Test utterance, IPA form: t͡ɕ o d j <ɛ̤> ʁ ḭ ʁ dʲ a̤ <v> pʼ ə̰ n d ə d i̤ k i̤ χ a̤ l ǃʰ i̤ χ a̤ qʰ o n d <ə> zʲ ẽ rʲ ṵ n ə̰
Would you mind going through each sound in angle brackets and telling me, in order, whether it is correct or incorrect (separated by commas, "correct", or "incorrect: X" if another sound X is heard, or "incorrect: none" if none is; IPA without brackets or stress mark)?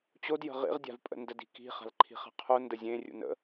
incorrect: ə̤, correct, correct